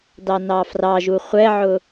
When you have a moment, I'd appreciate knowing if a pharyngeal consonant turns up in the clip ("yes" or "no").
yes